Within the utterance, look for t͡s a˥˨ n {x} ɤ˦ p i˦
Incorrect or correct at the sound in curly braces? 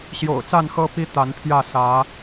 correct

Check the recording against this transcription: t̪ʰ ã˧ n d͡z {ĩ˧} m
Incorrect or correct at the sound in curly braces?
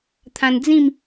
incorrect: ĩ˥˧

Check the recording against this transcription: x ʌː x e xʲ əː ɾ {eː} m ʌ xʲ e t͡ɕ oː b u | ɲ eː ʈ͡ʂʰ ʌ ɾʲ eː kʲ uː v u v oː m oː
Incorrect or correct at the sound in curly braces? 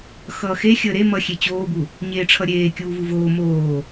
incorrect: e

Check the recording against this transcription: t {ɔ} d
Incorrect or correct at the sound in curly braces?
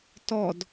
correct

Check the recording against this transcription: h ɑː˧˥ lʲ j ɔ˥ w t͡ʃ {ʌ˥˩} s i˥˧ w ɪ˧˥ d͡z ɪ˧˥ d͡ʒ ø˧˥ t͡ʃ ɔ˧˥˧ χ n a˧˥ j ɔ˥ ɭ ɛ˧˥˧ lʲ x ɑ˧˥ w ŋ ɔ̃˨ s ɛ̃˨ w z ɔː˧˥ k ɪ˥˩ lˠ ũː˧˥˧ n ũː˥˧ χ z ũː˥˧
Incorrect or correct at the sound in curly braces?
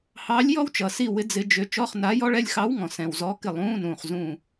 incorrect: ʌ˨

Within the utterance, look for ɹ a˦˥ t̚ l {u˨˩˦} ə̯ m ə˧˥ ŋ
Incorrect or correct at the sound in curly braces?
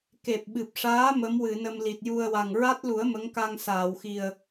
correct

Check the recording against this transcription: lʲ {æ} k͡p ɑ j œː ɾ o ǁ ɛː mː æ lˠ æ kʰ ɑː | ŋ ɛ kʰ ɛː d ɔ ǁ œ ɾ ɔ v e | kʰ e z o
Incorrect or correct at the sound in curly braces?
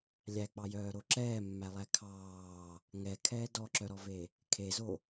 correct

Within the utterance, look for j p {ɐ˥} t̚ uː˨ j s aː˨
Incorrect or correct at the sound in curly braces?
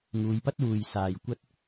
correct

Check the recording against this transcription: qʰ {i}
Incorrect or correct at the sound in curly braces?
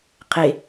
incorrect: e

